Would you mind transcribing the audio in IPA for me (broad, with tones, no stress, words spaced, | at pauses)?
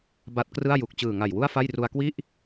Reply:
ba˦˥t̚krɯ˥˩a̯ ju˨˩k̚t͡ɕɯː˨˩ŋa˨˩j wu˥˩a̯fa˥˩jru˧a̯ kwi˥˩ʔ